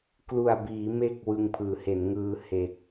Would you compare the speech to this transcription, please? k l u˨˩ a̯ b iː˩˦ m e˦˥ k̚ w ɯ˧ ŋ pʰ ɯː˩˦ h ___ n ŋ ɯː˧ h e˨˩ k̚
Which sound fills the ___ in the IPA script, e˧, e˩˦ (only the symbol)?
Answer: e˩˦